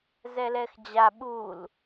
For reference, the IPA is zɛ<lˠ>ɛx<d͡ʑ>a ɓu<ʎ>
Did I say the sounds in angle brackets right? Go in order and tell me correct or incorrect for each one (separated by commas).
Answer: incorrect, correct, incorrect